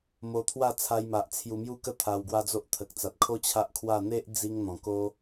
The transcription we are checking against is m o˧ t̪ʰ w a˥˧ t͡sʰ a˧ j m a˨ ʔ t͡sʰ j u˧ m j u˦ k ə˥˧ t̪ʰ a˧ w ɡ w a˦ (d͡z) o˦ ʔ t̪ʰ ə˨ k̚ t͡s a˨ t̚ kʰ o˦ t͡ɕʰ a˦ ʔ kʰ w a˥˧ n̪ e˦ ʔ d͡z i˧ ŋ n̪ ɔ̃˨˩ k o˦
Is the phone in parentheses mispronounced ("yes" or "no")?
no